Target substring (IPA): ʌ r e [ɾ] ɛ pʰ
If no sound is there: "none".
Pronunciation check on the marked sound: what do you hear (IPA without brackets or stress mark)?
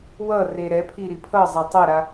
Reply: ɾ